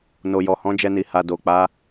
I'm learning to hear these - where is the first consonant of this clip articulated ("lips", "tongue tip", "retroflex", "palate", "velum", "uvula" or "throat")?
tongue tip